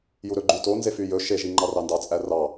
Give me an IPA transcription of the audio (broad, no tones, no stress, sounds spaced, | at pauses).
j u ɾ ɵ ɡ͡ǃ y t o n z e f y j ɵ ʃ e ʒ i ŋ͡ǃ ɑ r ɑ n d ɑ t͡sʼ æ r ɑ